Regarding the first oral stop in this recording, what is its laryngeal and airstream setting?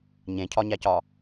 aspirated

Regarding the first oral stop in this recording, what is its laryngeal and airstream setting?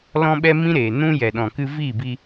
implosive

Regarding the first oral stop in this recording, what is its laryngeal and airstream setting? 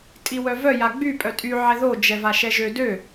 ejective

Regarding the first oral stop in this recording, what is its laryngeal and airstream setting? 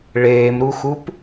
plain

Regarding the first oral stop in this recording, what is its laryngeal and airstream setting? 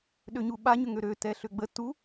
implosive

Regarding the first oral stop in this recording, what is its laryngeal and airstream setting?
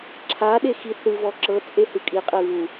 click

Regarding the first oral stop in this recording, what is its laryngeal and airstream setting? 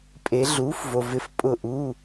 ejective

